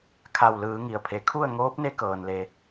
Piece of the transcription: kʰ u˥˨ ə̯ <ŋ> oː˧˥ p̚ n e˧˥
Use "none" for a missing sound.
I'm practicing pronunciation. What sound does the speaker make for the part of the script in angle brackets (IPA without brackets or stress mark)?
ŋ